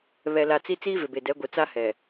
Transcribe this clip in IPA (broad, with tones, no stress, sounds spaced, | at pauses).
β ɛ˨ l a˨ t͡s i˦ t͡s iː˦ v ɪ˨ b e˨ d ɛ˨˦ ɡʷ ɪ˨ t͡s a˦ h ɛ˨